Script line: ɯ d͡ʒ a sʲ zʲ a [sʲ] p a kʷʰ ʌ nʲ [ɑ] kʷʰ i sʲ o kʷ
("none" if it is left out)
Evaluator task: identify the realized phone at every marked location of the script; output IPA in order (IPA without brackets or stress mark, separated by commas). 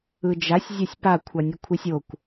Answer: sʲ, ʌ